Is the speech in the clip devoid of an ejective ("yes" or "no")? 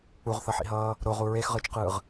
yes